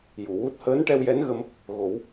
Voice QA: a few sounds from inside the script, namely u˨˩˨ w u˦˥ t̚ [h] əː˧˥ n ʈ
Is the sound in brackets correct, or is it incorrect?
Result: correct